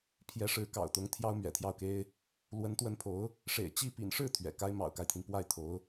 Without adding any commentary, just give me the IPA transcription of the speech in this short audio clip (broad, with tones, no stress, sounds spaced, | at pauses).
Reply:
pʰ j ɛ˧˥ ʂ ɻ̩˧˥ k ɑ̰˨˩ ʊ̯ t̪ ʊ˧˥ ŋ t̪ʰ j ɑ˥ ʊ̯ m ɥ ɛ̰˨˩ t̪ʰ j ɑ˥˩ ʊ̯ k e˥ ɪ̯ | l w ə˧˥ n t̪ w ə˧˥ n pʰ o˧˥ ʊ̯ | ʂ ḛ˨˩ ɪ̯ t͡ɕ i˥˩ p ḭ˨˩ n ʂ ɻ̩˥˩ t̪ʰ ɥ ɛ̰˨˩ k a˥ ɪ̯ m ɑ̰˨˩ ʊ̯ k a˦ ɪ̯ t̪ʰ i˩ n p w a˥˩ ɪ̯ t̪ʰ o˧˥ ʊ̯